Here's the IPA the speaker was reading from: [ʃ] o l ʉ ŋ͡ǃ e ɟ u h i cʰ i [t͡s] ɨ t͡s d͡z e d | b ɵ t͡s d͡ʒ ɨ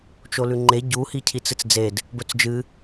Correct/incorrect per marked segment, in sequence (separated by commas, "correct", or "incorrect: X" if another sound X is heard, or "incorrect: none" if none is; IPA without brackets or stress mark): incorrect: t͡ʃ, correct